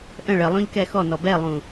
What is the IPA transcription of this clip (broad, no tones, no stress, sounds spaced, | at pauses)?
ʔ ə̃ ɭ ə lˠ õ ʎ k ɛ x ɔ n ɔ b ɛ lˠ ũ